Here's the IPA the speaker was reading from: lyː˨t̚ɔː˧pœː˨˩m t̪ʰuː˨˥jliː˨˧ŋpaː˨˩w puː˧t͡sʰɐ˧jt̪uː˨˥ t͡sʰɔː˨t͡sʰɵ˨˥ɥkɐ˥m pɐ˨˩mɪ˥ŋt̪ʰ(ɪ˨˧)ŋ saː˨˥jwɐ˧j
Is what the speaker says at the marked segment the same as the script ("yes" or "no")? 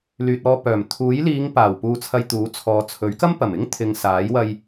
no